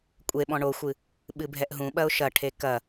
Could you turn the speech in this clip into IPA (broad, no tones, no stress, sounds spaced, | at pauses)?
kʷʼ e ɓ ɔ̃ ɳ o xʷ ɨ | ɓ ɨ bʱ ɛ ʔ ɦ ũ ɓ ɐ ʊ̯ ʃ ɐ ʈʰ e k ɐ